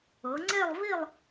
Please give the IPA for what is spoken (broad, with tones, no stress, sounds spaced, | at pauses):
ɤ˩˧ ŋ͡ǀ e˥˧ lˠ v i˥˧ lˠ